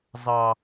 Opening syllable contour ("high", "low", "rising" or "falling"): low